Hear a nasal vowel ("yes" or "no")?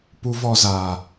no